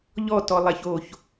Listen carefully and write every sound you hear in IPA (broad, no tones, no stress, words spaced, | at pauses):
ʎɔ tɔlˠæçoç